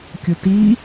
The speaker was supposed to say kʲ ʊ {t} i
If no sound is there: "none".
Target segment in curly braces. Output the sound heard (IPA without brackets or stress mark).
t